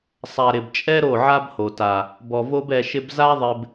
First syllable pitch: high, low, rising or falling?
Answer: low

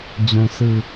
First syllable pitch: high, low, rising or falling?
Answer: low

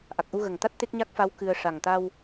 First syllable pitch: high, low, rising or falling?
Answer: low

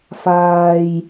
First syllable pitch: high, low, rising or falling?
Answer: low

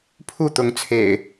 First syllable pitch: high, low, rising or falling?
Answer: falling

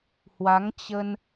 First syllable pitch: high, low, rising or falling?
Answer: rising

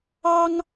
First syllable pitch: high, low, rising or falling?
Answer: high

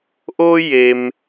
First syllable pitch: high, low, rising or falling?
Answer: high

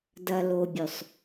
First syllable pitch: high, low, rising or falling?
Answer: low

